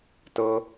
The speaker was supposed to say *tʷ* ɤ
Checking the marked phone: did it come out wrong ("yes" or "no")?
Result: yes